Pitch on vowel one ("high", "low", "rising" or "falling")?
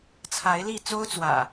rising